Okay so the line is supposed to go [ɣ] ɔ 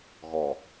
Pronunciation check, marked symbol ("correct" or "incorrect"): correct